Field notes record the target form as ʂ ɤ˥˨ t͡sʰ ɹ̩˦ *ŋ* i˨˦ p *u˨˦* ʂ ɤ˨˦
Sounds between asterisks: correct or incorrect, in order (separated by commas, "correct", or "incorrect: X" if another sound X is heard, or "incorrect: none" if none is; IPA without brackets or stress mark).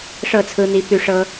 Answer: incorrect: n̪, incorrect: y˨˦